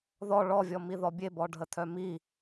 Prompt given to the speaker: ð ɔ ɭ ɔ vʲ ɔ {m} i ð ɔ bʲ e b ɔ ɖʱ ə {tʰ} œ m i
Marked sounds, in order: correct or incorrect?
correct, correct

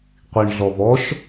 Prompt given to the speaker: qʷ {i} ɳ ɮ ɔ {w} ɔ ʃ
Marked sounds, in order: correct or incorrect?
correct, incorrect: v

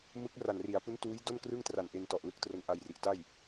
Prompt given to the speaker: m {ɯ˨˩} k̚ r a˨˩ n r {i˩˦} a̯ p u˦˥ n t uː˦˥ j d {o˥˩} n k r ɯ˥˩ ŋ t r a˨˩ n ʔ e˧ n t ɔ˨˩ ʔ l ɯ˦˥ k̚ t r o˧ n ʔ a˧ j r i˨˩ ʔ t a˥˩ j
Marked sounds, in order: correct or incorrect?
incorrect: ɯ˦˥, correct, correct

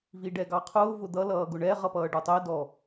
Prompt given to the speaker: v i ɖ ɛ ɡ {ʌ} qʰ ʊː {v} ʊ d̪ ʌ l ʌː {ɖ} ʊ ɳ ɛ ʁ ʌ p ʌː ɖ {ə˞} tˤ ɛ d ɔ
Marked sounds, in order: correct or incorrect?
incorrect: ɑ, correct, incorrect: ɡ, correct

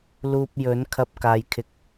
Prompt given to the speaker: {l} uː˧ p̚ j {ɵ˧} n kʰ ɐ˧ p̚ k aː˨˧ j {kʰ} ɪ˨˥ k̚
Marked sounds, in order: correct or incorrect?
correct, incorrect: ɵ˨˥, correct

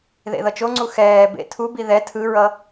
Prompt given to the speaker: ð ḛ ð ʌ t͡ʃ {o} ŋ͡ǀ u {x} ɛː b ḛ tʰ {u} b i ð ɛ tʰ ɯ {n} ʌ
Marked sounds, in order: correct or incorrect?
correct, correct, correct, incorrect: ɹ

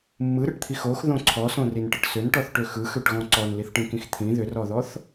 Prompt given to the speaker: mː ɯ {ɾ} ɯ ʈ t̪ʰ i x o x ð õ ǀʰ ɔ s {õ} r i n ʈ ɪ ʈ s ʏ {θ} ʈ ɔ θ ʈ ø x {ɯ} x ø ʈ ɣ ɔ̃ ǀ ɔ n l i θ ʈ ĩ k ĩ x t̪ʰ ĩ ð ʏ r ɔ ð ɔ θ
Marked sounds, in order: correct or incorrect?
correct, correct, incorrect: n, correct

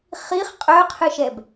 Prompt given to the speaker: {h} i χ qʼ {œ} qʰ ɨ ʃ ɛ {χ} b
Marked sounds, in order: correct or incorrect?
incorrect: χ, correct, incorrect: none

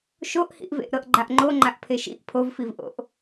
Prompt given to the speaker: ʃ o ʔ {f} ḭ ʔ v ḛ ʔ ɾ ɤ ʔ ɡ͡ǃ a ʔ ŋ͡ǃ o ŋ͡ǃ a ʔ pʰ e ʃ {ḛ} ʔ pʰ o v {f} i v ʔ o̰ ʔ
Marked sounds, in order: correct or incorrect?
incorrect: h, incorrect: ḭ, correct

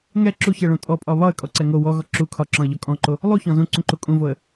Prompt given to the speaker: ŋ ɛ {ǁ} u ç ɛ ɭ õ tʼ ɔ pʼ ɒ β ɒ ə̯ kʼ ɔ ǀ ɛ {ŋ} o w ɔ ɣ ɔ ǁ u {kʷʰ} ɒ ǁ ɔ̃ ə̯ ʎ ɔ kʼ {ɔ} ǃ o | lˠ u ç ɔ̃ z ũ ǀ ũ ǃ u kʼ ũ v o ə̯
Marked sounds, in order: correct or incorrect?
correct, correct, incorrect: kʰ, incorrect: ɔ̃

